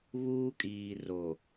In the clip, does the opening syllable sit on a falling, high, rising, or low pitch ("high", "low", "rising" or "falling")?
high